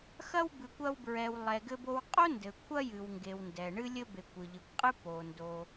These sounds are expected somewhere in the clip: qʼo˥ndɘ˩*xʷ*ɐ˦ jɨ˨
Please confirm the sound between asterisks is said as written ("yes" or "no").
no